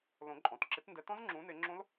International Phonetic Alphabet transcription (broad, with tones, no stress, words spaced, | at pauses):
lõ˨˩˦ǃʼɔ̃˩˧˩tǁɪ˨˦t ndɛ˨˦tɔ̃˦˥zŋ͡ǁũː˨˦ nɪ˨˦ŋ͡ǁõ˦˥l